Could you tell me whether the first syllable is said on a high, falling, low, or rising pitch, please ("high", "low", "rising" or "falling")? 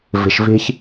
low